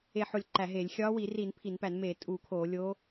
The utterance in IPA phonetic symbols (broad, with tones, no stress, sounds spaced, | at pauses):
e˧˩ ħ o˧˩ lʲ ǃ æ˧˩˧ ɦ e˧˩˧ lʲ xʲ ɒː˧˥ w i˧˩˧ r i˧˩˧ n pʰ i˧˩˧ n p æ˧˩˧ n m eː˧˩˧ tʼ uː˧˩˧ kʰ oː˧˩˧ lʲ o˧˥